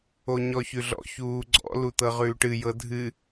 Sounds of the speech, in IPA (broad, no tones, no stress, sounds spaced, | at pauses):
o ɲ ɔ ç ʉ ɮ ɔ̰ ç uː ɡ͡ǀ ɔ̰ l u t̪ ɤ ʁ ʉː ʈ ɨ j ɤ dʱ ɨ